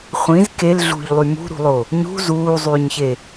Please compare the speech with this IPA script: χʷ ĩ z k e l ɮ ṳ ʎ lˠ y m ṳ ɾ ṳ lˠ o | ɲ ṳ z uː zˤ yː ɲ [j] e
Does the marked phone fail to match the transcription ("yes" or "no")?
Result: yes